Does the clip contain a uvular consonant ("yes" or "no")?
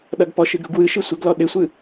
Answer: no